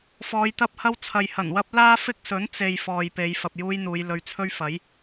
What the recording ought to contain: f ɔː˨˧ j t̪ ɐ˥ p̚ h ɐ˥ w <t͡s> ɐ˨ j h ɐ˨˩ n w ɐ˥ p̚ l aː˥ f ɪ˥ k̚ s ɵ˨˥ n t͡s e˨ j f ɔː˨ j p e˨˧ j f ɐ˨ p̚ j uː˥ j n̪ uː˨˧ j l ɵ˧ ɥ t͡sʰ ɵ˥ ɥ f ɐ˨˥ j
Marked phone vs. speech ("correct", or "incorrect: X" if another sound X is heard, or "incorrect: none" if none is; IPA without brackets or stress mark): incorrect: t͡sʰ